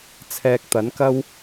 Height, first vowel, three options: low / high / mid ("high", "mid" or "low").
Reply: mid